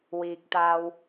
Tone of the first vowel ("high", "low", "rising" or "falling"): low